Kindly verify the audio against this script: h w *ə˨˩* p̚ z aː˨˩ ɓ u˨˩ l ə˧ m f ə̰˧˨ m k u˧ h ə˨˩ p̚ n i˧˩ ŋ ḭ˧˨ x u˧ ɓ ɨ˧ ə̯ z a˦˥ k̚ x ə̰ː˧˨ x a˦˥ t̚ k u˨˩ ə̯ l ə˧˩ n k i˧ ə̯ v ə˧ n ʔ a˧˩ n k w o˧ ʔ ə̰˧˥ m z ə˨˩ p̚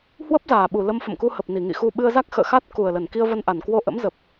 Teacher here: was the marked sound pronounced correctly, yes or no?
no